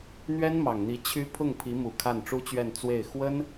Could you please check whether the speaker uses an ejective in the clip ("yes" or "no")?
no